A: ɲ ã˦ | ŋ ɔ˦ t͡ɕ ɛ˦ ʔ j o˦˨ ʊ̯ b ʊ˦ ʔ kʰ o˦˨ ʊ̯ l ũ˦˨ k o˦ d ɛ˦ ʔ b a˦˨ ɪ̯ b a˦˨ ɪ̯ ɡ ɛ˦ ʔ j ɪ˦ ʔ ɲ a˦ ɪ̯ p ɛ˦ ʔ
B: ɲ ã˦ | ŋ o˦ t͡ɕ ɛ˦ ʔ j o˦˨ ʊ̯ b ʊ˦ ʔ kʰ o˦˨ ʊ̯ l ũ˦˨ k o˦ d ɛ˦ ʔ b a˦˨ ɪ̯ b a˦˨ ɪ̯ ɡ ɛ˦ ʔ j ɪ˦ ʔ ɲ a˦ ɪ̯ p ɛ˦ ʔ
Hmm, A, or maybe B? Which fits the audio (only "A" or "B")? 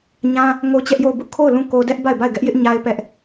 B